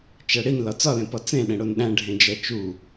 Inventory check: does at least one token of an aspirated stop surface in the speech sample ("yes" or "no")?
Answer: no